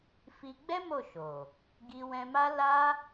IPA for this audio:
f i˧ ɡ͡b ɛ˦ m o˦˨ ʃ o˨ | ɡ i˧ w ɛ̃˧ m a˦ l a˦

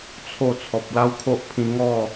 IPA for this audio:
t͡sʰ o˥˧ t͡sʰ ɔ˨ p̚ l a˦ w kʰ o˦ ʔ pʰ ĩ˧ ŋ ɔ˥˧

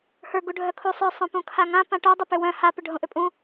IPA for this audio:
h ə˞ ɡ u ɖʱ œ kʰ u sˤ ə˞ sˤ õ p ũ kʰ a ŋ ã p ã ʈ o dˤ ʏ p ʏ w œ̃ h a p ʏ ɖʱ õ ʔ ʏ pʼ ũ

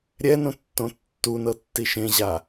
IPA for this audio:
ɾʲ ɛ n õ tː õ tː u n ɤ tː i ʃ ẽ ʑ a

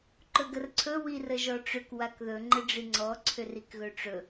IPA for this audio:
ǃ ɵ ɡ ə r ǀʰ ɵ w i r ə ʒ ɔ ʈ͡ʂ ʏ k w a k ð ɵ ŋ͡ǃ ɘ ɖ͡ʐ i ŋ͡ǀ ɔ ǀʰ ʏ r i k ɣ ɵ ʈ͡ʂ ɵ

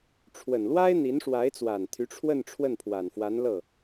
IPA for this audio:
ʈ͡ʂʰ w ə˨˩ n l w a˥ ɪ̯ n̪ i˧˥ n ʂ w a˧˥ ɪ̯ t͡s w a˨˩ n t̪ʰ y˧˥ ʈ͡ʂʰ w ə˥˧ n ʈ͡ʂʰ w ə˥˩ n pʰ w a˨˩ n f w a˧˥ n l ɤ˥˩

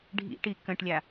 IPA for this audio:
ɖʱ ḭ ʈ i k ə̃ ʈ lʲ a

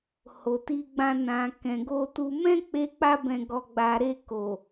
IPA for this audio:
h o˨ t i˧ ɡ͡b ã˧ n ã˨ k ɛ̃˨ ɡ o˧ t u˧ m ɛ̃˦ k͡p e˧ k͡p a˧ b ɛ̃˨ ɡ ɔ˨ ɡ͡b a˨ ɾ e˧ k o˨

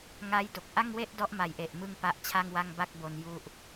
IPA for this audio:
ŋ a˦˥ j d o˨˩ k̚ ʔ a˥˩ ŋ w e˥˩ ʔ d ɔ˦˥ ʔ m a˨˩ j ʔ e˨˩ ʔ m ɯ˥˩ ŋ p a˦˥ ʔ t͡ɕʰ a˥˩ ŋ w a˥˩ ŋ b a˥˩ k̚ b o˧ n j u˦˥ ʔ

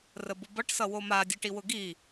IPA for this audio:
r ə b ʊ b ʌ ʈ s ʌ w o m a dʲ ʌ ʈ i w ʊ ɡ i

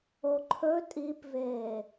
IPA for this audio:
o ǃʰ ɵ tʼ i p v eː

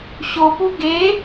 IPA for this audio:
ɕ o p u ɡ e

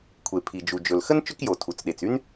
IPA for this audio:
kʷʰ e˩ pʰ i˩ d͡ʒ u˩ d͡ʒ ɵ˩ l x ə˥ n t͡ʃ ɵ˥ k j o˩ tʰ u˩ t͡s ɗ e˩ t͡s y˥ n

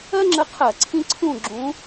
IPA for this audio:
ɜ˦ ŋ͡ǁ ə˨˦ qʰ ɜ˧˩˧ ǀʰ ĩ˦ ǀʰ ũ˦˨ ɡ͡ǁ ũ˨˦

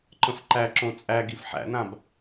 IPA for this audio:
ǃ ə̃ f ǃ æ ǁ õ t͡sʼ æ ɡ i f ħ æ̰ n ã b

